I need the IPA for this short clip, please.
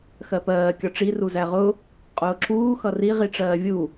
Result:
x ɜ p ɜː kʲ ɒ ʈ͡ʂ i r u z æ ʁ ʊ | qʼ ʊː ǁ uː x ʌ r i ʁ i ʈ͡ʂ ɜː vʲ u

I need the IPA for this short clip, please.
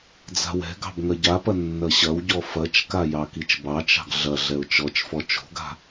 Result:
d͡z a̤ w ɛ̤ ɡ ɑ̤ b ŋ ɐ ɟ a p ɐ nː ɐ ɕ ɐ w ɟ ɔ f ɐ t͡ʃ k a j ɑ k i t͡ʃ b ɑ t͡ʃ ɑ̤ ɡ ɮ ɐ ɮ ɛ ʊ̯ t͡ʃ ɔ t͡ʃ f ɔ t͡ʃ o̤ ɡ a̤

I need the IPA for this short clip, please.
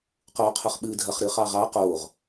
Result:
q oː qʰ ʊ χ ɓ ɨː dʱ ɐ χ ɾ ɨː χ ɑ ʁ ɑ q oː ʁ

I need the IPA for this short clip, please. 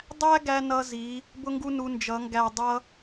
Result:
dˤ æ˦ ɡ æ˦ n ʌ˦ z i˨˦ | b ʊ˦ ŋ ɡ u˦ n u˧ n d͡ʒ ʌ˨˦ ŋ ɡ æ˦˨ dˤ ʌ˦

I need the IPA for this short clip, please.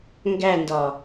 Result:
ŋ ɡ æ n d ɒ

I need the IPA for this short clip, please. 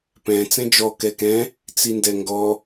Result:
p ɛ̃ t͡s ɛ̃ d͡ʒ ɔ k ɛ k ɛ̃ | t͡s i n d ɛ ŋ ɡ ɔ

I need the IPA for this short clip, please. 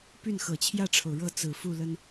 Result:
p y˥˩ n x ɤ˨˩ t͡ɕʰ j ä˥˩ ʈ͡ʂʰ o˩ ʊ̯ ɻ ɤ˥˩ t͡s ɹ̩˨˩ f u˥˩ l ə˥ n

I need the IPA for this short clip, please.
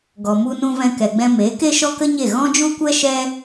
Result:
ɡ ɔ˨ m u˧ n ũ˧ v ɛ̃˧ k ɛ˨ ɡ͡b ɛ̃˧ m e˨˦ k e˦ ʃ ɔ˦ k ə˦ ɲ e˦˨ ɣ ɔ̃˦ d͡ʒ u˦ kʷ ɛ˦ ʃ ɛ˦

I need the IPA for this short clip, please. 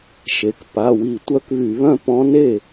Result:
ʃ e˩˧˩ k p a˩˧˩ w i˧˩˧ tʷ œ˧˥ k β y˧˩˧ β œ̃˥˩ p ɔ̃˧˥ n e˥˩

